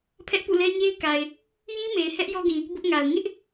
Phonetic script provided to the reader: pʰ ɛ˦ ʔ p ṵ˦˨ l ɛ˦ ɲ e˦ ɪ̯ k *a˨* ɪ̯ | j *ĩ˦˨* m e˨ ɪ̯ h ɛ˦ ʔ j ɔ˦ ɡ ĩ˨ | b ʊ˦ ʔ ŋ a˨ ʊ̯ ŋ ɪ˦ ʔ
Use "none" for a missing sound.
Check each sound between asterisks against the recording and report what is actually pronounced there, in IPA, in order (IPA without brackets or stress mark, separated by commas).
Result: a˨, ĩ˦